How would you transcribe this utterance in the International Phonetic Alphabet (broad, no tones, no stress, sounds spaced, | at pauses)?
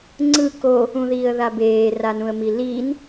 ŋ͡ǀ ɯ k o | ũ ð iː ə̯ ð a b eː r a n ũ ə̯ m i l iː n